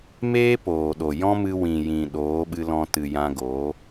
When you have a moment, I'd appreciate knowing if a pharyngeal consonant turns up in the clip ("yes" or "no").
no